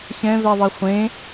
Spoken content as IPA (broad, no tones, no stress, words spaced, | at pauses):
ɕɛ̃vɛðˤe χʷẽ